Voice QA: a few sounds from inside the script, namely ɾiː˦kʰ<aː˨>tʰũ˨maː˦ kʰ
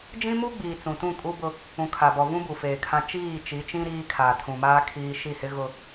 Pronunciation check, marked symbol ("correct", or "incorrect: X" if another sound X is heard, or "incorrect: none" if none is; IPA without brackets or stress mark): correct